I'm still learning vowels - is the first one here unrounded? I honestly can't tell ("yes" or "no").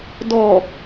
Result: no